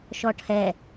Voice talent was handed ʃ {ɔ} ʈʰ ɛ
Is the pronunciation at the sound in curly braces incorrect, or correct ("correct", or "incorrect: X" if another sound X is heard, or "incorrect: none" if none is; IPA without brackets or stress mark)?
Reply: correct